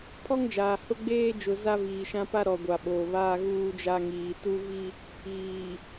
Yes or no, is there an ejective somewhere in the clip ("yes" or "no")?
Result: no